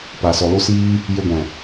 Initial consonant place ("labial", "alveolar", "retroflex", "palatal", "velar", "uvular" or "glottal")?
labial